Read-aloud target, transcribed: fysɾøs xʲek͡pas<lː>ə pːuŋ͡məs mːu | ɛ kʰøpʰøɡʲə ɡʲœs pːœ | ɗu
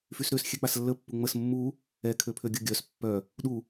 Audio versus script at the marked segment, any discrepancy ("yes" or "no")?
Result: no